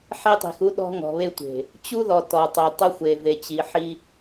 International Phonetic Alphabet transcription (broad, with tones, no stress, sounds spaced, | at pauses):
ħ e˦ tˤ i̤˨ x u˦ ɗ ɔ̤˦ ŋ ɔ̤˨ β e˦ tʷ e̤˨ | t͡ɕ u˦ ð ɔ˨ t ɔ˨ tˤ i˨ tˤ ʊ˦ xʷ e˨ v e˨ t͡ɕ i˨ ħ i˦